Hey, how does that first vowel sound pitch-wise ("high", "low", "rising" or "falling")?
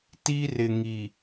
high